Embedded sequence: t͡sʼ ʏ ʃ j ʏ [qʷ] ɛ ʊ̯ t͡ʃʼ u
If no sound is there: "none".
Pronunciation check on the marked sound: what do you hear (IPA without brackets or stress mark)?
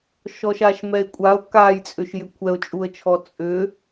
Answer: kʷʰ